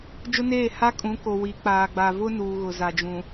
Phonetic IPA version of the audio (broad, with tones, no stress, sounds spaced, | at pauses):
d͡ʒ ʊ˦ n eː˦˨ h a˦ kʼ ũ˨˦ k o˨ w i˨˦ k͡p aː˨ ɡ͡b a˨ v ʊ˦ n uː˨ ɣ ʊ˨ z a˨ d͡ʒ ũ˨